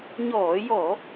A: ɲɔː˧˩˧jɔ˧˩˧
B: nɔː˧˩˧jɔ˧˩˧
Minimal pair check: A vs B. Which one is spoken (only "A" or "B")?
A